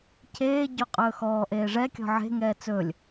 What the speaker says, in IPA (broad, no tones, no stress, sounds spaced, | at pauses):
cʰ eː ɟ o qʼ ɵː x ɔː ʔ eː ʐ ɛ kʲ ɔ̤ ʕ e̤ ŋ ɛː t͡s ɵ lʲ